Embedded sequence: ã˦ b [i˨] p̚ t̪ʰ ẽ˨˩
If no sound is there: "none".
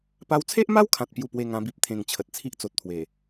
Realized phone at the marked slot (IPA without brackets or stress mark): i˦